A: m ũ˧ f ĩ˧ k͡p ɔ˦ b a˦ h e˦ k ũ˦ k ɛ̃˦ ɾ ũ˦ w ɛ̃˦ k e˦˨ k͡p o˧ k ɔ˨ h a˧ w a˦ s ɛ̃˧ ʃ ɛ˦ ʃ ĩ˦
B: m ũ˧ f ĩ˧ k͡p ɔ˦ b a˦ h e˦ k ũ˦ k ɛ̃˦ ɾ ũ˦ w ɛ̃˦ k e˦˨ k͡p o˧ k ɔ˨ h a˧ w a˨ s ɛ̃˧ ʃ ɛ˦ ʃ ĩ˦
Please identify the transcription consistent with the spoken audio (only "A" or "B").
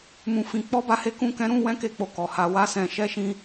A